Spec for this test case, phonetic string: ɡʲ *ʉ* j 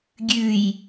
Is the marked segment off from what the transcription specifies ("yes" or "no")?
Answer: no